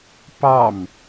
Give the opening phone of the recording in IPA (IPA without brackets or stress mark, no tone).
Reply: p